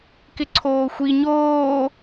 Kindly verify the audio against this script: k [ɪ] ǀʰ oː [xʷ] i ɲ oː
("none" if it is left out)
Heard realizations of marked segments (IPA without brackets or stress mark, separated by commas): ɪ, xʷ